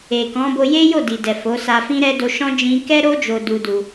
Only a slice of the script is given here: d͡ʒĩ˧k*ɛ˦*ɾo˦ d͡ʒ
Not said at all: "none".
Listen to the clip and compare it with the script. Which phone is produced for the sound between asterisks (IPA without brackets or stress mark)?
ɛ˦